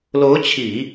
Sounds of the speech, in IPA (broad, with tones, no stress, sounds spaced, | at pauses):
l o˧˥ ʊ̯ t͡ɕʰ i˨˩˦